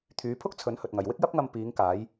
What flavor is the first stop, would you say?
aspirated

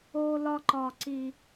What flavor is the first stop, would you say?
click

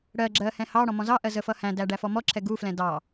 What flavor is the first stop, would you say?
click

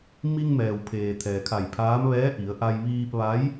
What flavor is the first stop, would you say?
aspirated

